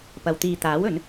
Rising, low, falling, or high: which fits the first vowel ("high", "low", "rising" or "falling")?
low